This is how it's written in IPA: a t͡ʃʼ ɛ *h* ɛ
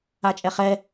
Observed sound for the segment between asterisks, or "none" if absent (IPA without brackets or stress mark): χ